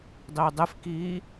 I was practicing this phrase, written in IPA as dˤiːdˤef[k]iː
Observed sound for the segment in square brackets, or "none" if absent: k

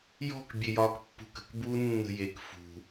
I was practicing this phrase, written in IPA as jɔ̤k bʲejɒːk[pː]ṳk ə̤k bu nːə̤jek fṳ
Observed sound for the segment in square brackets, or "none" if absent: pː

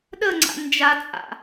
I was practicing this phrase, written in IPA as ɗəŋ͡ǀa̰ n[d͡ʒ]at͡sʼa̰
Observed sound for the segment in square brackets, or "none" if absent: d͡ʒ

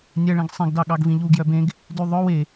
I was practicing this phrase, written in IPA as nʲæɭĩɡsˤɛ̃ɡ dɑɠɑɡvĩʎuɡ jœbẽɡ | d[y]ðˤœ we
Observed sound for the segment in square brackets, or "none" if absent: y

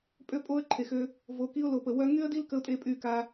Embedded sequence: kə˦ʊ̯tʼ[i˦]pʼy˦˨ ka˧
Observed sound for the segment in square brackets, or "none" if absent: e˦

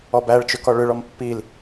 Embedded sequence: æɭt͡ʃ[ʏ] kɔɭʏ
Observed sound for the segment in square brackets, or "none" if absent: ʏ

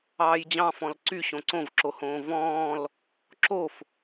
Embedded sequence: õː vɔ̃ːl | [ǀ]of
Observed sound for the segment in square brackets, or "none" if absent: ǁ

